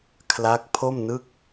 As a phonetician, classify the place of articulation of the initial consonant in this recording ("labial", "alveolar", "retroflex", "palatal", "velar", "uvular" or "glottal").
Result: velar